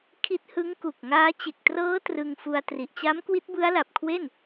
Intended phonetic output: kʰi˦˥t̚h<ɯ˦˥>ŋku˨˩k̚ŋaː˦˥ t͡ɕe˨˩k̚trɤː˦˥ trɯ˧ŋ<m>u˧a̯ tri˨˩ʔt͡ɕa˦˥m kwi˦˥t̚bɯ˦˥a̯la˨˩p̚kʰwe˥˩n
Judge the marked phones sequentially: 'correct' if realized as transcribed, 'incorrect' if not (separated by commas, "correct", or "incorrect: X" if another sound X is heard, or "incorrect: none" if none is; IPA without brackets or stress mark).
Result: correct, incorrect: f